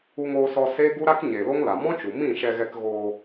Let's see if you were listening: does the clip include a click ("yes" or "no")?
no